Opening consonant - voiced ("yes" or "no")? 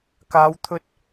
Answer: no